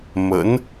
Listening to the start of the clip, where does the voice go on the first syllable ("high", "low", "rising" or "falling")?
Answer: rising